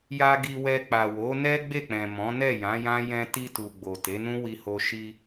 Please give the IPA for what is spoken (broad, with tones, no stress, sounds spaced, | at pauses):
j a˧ ɡ i˧ w ɛ˧ k͡p a˨ w o˨˦ n ɛ˦ ɡ͡b e˦˨ k͡p ɛ̃˨ m ɔ̃˨˦ n ɛ˦˨ j ã˨˦ j ã˦ j ɛ̃˧ t i˧ t u˨ ɡ͡b o˨ t e˨˦ n ũ˦ w i˧ h o˧ ʃ i˧